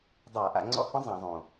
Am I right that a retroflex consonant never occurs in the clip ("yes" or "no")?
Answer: yes